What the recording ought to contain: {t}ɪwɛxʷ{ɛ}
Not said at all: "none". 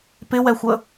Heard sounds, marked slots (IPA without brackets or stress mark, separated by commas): p, ə